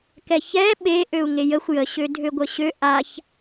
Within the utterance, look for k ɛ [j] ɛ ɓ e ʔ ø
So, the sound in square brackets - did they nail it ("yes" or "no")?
no